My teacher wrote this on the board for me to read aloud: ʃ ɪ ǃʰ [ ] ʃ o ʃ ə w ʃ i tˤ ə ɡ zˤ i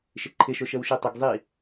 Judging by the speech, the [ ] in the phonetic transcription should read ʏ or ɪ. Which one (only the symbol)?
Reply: ɪ